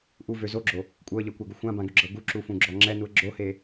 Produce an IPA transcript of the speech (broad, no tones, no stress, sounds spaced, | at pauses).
ʔ u v ø z o ɡ͡ǁ o | kʷʼ ɤ ə̯ ʎ ɤ kʷ a ɡ u xʷ ã b ã ɡ ø ɡ͡ǁ ɤ ɡ u ǁ u f ũ ɡ͡ǁ ɔ ŋ͡ǁ ɛ n u ə̯ ɡ͡ǁ o h e